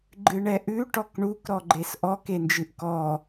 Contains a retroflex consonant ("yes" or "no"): yes